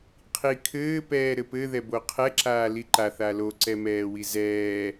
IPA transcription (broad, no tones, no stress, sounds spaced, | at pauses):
qʰ i kʰ ɘː p ɛː ɾ ɘ p ɘ ð ɛ b o qʰ ɛ ǁ aː l i ǃ a θ a l o ǀ ɛ m ɛː w i z ɛː